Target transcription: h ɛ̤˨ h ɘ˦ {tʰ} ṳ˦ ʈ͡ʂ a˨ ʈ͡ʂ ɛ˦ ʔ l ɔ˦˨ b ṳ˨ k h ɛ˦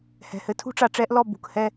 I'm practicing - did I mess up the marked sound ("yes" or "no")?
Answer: no